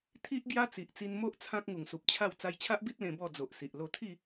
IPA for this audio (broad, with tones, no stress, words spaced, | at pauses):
t̪ʰi˦ʔ ɡja˦t͡si˨ʔ t͡si˧nmo˦ʔ t͡sʰã˦k̚ ŋu˨˩ŋsu˨p̚ t͡ɕʰa˥˧w t͡sa˧jt͡ɕʰa˦ʔbi˦t̚ lẽ˧bɔ˥˧ d͡zo˨ʔsi˨ʔ lo˧t̪ʰi˥˧